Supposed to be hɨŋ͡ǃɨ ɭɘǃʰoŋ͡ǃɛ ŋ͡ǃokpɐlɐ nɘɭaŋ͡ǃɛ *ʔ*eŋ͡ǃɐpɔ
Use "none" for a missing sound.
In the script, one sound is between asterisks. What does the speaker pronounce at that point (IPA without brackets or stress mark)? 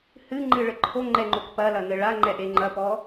ʔ